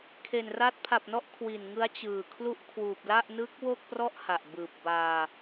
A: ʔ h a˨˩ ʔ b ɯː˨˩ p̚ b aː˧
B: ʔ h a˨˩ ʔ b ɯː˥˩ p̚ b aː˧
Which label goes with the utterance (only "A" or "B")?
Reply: A